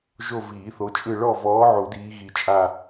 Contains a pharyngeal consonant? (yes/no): yes